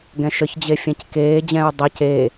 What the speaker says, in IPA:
ɡɛ̃ʃəçd͡ʑe fʲɛ̃ckeːd͡ʑɛ̃ɹ dˤʌc e

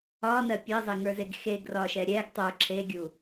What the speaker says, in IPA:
ɒnɜ pʲɜzˤeŋə˞zeɡ xeɡrɒʃɛ ɾʲɛɡ tˤə˞ ǁʰeɡʲu

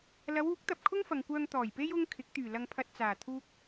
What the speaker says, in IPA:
lɐ˨˧wuː˨˥k̚ t̪ɐ˨p̚kʰʊ˥ŋfɐ˨ŋkʷœː˧ŋ t̪ɔː˨˩jpe˥j ʊ˧ŋ kʰɪ˨˥k̚t̪yː˨˩ lɐ˧ŋpʰɐ˧t̚t͡saː˨˩ t̪ʰuː˥k̚

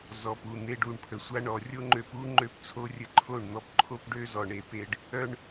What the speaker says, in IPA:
zɔ˨pu˦˨n̪e˧ɖ u˦˨ɳpʰə˨sʷa˦ ɳɔ˨rʲo˦ŋ͡ǃø˧pu˦ ŋ͡ǃø˧pt͡sʰo˦rʲə˧ ǃʰo˦˨ɳn̪ɔ˧pǃʰo˦pɖø˦ zɔ˨ɳe˨pe˧ɖ | œ˦ɳ

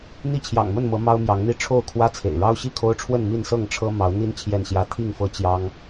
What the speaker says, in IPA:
n̪i˥˨t͡ɕʰjɑ̰˨˩ŋmə˥˨nmɤ˨˦ mɑ˦ʊ̯mjɑ˨˦ŋn̪i˦ ʈ͡ʂʰo˥˨ʊ̯kʰwä˦t͡sʰḛ˨˩ɪ̯ ɻɑ˦ʊ̯ɕi˥˨kʰo˦ʊ̯ʈ͡ʂʰwə˥˨n mi˥˨nsɤ˥˨ŋʈ͡ʂʰɤ˦ mɑ˨˦ʊ̯n̪i˦n t͡ɕʰjɛ˥˨nɕjä˦ t̪ʰi˥˨ŋfɤ˦ t͡ɕjɑ˦ŋ

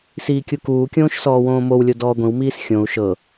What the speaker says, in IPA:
siːkʲukuːkʲõːʃ sɔːwõːmowlʲo dɔːɡʷĩwmiːs xʲõu̯ ʃɤ

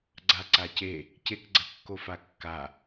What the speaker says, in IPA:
ɡ͡ǀaǀace | cekɡ͡ǀɐkːofa kːa

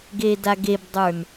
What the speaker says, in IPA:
ɡedaɡebdˤə˞n

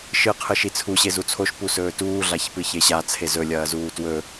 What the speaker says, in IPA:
ʃɨ qʰɨʃit͡sʰu ɕezut͡sʰoʃ pusɵːtuː ɮaçpɨçeɕa t͡sʰezɵ lʲɐːzuːtwɵ

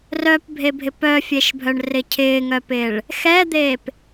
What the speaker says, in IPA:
rœpbʱebʱɪ pœfʲeʃbʱœɳrɪ cʰɪːŋœpɪːɭ | xɛd̪eːp

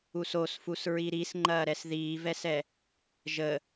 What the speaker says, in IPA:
usosfus ɹiɾisŋ͡ǃɐːɾɛs ðiːvɛsɛ | ʒə

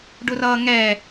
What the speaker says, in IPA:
ɖʊrʌːŋɛ

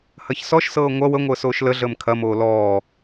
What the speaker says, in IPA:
hɐçsɔʃsɤː ŋʷɐ wəŋʷəː soːʃləɮəːm kʰɐmoː lɔː

